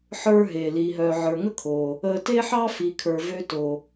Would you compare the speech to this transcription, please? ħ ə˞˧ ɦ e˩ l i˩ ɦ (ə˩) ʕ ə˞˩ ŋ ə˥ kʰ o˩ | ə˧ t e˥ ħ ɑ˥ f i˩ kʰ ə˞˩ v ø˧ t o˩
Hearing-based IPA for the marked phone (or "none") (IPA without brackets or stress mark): œ˩